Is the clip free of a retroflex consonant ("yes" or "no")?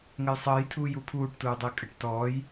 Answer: no